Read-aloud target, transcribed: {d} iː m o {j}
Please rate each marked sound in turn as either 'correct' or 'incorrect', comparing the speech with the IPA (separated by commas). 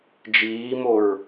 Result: incorrect, incorrect